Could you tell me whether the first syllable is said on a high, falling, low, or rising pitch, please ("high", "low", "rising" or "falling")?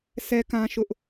high